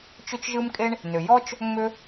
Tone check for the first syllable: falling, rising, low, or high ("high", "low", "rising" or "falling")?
high